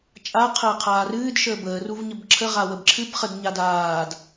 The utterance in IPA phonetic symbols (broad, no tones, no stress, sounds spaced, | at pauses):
t͡ʃʼ a qʰ əː qʰ aː r ɨː d ʃ əː b əː r u v ɲ ə b ǁʰ ə ʁ a w ə b ǁʰ ɨ b χ ə d ɲ a d aː d